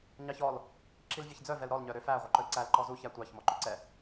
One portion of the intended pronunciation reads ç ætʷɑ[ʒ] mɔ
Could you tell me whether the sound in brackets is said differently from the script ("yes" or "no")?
yes